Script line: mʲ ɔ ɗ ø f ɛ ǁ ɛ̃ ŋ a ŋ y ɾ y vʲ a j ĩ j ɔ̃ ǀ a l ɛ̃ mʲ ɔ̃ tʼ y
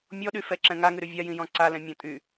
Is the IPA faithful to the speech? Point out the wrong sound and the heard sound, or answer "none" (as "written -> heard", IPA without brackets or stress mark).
ø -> y